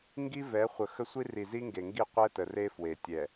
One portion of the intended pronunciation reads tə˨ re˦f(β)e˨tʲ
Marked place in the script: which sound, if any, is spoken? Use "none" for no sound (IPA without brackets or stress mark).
w